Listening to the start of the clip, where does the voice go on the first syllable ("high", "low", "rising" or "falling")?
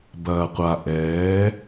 low